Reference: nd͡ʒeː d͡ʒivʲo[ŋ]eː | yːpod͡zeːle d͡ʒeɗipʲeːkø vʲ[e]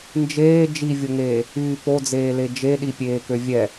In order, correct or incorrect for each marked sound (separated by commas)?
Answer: correct, incorrect